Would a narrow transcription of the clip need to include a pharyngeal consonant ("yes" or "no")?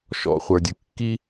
no